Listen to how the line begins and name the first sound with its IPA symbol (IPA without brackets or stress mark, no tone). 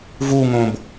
v